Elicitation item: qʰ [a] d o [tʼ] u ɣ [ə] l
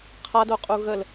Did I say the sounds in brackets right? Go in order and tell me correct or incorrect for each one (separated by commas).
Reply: correct, incorrect, correct